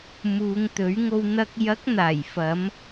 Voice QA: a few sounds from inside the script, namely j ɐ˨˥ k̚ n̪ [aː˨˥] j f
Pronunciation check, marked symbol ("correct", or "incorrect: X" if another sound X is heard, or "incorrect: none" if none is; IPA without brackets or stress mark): incorrect: aː˨˩